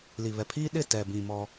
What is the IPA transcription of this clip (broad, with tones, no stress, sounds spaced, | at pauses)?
l i˨ β ɛ˨ pʰ iː˦ ɗ ɪ˦˨ t ɛ˨ b ĩ˨ m ɔ˦